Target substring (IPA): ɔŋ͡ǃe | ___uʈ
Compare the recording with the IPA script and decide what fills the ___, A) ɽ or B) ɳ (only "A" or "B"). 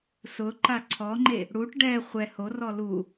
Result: A